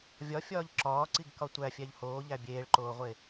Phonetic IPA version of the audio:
vʲ ɒ fʲ ɒː ʎ ǁ ɒː ǀ i ɡ k ɒ tʷ æ fʲ æ ʎ h oː ʎ æ bʲ eː ɭ ǃ oː ʁʷ e

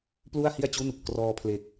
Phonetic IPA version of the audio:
p l u˥˩ a̯ h i˥˩ a̯ t͡ɕ u˥˩ n | k r ɔː˧ pʰ l e˨˩ k̚

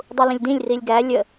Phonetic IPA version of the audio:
dˤ u l ə̃ lʲ d ĩ lʲ r i lʲ ɡ æ lʲ ə

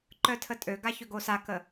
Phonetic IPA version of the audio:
ǃ œ tʰ ə tʼ ø ɡ a ç ø ɡ o s a k ə

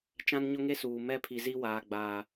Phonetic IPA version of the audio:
t͡ʃ ã˦ n ɲ ʊ˦ ŋ e˦ s uː˨ m ɛ˦ pʰ i˨ z i˦ w aː˨ ɡ͡b aː˨

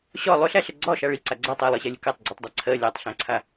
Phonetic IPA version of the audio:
ɕ ɒ lˠ ʏ ɬ æ ɬ ə ɡ͡ǀ ɒ ʃ a ɭ i ǀ a ɡ͡ǀ a tˤ æ lˠ ɜ ɕ æ lʲ ə k a tˤ ɡ͡ǀ i tˤ dˤ a ǀʰ ɜ lʲ a tˤ ɬ æ̃ ǀʰ a

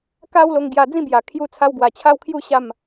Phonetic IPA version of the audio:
k a˦ w l o˧ ŋ ɡ j a˧ d͡z ĩ˦ b j a˨˩ kʰ j u˧ t͡sʰ a˧ w ɡ w a˨˩ t͡ɕʰ a˦ w kʰ j u˦ ɕ a˥˧ m

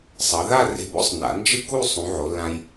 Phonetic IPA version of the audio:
sˤ ʌ˩˧ ð a˥˧ r e̤˧ b o̰˥ sˤ n a̰˩˧ n d͡ʒ ɯ˥˧ k u˥˧ sˤ ũ˩˧ ʕ o˩˧ lː ã˧ j

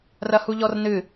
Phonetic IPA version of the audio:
r ɐ h u ʎ ɔ r n ɨ

